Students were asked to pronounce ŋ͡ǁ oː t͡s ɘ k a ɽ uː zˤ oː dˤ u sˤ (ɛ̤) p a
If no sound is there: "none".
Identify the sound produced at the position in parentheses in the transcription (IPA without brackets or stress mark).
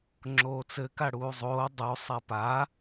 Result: ɛ